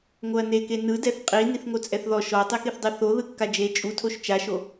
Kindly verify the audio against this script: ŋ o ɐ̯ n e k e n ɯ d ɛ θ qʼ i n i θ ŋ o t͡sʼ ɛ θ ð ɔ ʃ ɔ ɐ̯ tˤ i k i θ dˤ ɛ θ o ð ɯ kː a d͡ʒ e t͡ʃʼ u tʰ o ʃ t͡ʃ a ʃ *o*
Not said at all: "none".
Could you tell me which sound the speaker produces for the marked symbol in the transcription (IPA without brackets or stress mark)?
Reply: o